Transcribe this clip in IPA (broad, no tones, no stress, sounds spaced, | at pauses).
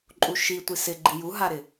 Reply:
ǃʼ u ʃ i tʷ i s ɪ ɡ͡ǃ i j u ɦ a ɾ ɪ